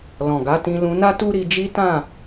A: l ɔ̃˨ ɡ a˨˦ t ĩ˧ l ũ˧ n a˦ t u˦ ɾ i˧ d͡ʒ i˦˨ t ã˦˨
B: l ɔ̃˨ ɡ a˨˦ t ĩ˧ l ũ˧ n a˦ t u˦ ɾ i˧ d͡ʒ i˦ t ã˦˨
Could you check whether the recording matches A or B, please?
B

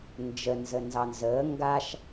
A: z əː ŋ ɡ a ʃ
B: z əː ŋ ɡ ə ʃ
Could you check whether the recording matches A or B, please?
A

